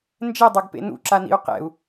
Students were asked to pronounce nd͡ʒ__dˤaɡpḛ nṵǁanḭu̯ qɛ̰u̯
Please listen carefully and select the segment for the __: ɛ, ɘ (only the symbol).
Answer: ɛ